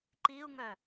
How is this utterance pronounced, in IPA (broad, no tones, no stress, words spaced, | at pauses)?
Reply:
ǃiu̯ŋœ